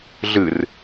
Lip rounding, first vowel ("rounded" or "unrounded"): unrounded